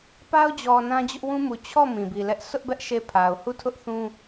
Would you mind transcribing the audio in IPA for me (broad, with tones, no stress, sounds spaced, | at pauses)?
p a˦ ʊ̯ d͡ʑ ɔ˨ n ã˦ d͡ʑ ʊ˦ ʔ w ũ˦ m u˨ t͡ɕʰ ɔ˦˨ m ĩ˨ b i˨ l ɛ˦ ʔ sʰ ʊ˦ ʔ b ɛ˦ ʔ ʃ e˦˨ pʰ a˨ ʊ̯ h u˦˨ tʰ ʊ˦ ʔ θ ũ˦